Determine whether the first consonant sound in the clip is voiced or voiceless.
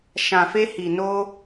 voiceless